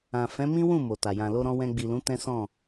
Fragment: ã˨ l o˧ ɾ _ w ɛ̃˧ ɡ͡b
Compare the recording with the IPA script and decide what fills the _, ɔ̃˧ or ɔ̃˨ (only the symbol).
ɔ̃˧